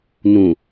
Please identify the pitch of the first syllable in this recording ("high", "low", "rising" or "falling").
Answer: low